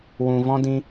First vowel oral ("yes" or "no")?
no